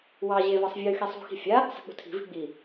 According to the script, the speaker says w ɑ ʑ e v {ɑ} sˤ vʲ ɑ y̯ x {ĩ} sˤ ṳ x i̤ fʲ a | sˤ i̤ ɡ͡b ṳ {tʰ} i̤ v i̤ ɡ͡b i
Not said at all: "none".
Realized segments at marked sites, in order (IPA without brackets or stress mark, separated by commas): ɑ, i, tʰ